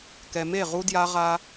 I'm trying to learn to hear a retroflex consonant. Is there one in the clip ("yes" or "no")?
no